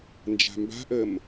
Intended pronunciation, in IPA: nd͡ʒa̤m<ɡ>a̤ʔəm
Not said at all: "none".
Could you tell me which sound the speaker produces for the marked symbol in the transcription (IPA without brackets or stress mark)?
b